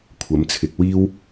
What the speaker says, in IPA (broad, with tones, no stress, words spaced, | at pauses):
kʷʰɐ˨˥mt͡sʰɪ˨˥k̚ wiː˥w